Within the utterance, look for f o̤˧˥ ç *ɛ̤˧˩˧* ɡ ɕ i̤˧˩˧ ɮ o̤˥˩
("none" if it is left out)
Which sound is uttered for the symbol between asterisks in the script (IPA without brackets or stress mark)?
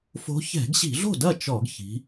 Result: ɛ̤˧˩˧